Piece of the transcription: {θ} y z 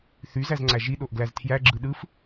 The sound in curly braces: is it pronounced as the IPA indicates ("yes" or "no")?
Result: yes